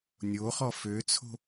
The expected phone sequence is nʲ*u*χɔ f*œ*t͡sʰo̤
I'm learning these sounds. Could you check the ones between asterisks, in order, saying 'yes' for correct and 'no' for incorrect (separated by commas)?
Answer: no, no